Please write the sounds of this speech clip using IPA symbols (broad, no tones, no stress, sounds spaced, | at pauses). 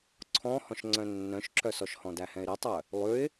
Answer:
ǀʰ ɔ̃ h ɔ̃ ʃ ŋ͡ǀ œ̃ nː œ̃ ʃ ǁ œ s ɔ ʃ h ɔ̃ d æ h ɛ̃ ɪ̯ ɾ ɛ tˤ œ | lˠ ʉ ɪ̯